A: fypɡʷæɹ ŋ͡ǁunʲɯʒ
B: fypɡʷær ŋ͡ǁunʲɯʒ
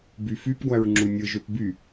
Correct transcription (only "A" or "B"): A